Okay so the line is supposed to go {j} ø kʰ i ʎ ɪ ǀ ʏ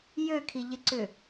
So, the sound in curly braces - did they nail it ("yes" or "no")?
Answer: yes